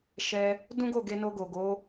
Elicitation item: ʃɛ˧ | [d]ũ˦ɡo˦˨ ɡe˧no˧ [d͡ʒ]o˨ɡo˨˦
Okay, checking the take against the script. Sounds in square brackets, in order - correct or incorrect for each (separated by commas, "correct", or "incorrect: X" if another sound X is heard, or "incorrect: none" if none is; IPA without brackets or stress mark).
correct, incorrect: ɡ